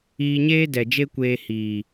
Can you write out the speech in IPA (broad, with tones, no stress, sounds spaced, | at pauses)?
iː˧ ɲ eː˦ d ɛ˨ d͡ʒ e˦ kʷ eː˧ h iː˨